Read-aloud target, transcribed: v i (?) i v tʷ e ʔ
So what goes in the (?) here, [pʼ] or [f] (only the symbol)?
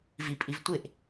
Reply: pʼ